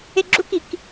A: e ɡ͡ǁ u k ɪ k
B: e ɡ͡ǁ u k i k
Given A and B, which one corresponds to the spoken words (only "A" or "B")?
B